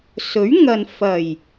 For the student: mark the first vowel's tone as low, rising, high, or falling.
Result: rising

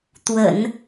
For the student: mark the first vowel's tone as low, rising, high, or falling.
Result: low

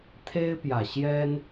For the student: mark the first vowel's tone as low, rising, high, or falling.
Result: high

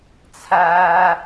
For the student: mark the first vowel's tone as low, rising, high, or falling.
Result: high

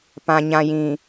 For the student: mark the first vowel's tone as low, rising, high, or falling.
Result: low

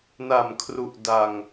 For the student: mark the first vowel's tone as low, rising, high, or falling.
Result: low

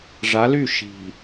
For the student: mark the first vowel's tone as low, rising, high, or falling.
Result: rising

